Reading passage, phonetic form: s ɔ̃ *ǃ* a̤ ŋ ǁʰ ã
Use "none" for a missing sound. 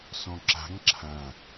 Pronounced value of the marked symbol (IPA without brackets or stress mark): ǁ